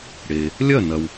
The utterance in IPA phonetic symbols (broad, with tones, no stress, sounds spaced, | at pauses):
ɽ e˩ | lʲ ɐ˥˩ n ɐ˩ w